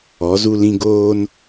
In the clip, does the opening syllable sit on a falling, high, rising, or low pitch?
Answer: rising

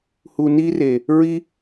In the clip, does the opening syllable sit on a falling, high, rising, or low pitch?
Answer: low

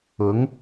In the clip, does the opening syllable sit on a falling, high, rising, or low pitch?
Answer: rising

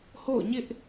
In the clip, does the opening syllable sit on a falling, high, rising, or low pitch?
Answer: falling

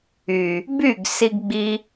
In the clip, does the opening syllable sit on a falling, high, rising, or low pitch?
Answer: low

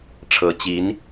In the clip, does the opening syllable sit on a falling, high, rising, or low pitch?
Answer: rising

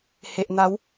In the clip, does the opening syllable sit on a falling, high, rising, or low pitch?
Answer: low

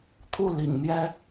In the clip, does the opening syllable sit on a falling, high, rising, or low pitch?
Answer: falling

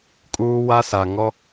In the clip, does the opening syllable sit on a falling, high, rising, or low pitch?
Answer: high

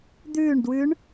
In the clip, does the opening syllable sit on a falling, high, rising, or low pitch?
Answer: falling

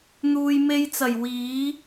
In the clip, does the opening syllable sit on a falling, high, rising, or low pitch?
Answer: low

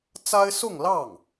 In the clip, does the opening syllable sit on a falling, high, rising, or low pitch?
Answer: high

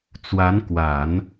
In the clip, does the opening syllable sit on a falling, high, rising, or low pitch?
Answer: rising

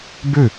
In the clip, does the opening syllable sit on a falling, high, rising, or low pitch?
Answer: falling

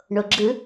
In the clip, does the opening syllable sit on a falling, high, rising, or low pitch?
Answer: low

